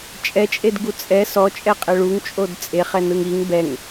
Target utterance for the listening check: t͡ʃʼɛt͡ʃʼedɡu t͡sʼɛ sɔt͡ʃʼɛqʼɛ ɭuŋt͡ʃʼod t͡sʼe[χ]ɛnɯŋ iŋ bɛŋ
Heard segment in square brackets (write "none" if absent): χ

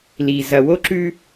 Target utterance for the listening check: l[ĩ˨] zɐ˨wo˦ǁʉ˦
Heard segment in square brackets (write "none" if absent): i˨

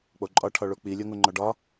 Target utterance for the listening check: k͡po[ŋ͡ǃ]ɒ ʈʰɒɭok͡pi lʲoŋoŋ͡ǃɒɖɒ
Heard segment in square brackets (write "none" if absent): ǃʼ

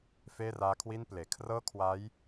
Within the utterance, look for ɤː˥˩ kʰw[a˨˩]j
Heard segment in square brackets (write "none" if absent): a˦˥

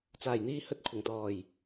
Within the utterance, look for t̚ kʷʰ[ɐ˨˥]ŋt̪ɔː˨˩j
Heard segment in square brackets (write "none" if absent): ɐ˨˩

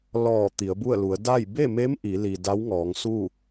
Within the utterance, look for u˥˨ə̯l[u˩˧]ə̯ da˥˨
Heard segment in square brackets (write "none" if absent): u˩˧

